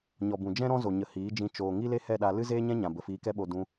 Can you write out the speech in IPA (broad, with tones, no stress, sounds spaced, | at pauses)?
ɲ ɔ˨ b ũ˨ d͡ʒ ɛ̃˦ ɾ ɔ̃˦ z o˨ ɲ ə˨ h iː˨˦ d͡ʒ ĩ˧ t͡ʃ oː˨ ŋ i˦ l e˦ h ɛ˦˨ ɗ a˧ l ɨ˦ z eː˦ ɲ ɛ̃˦ ɲ ã˨ b ə˨ f iː˧ k ɛ˦ ɓ o˧ d ũ˧